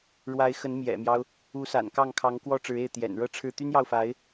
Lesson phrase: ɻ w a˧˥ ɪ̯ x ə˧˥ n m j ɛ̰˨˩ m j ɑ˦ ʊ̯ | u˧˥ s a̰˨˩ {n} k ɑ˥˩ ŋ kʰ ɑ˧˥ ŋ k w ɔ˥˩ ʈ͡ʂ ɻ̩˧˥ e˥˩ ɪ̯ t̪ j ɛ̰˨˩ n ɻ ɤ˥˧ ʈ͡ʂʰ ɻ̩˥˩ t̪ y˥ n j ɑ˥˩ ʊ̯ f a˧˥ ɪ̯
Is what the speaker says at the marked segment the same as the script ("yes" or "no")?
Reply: yes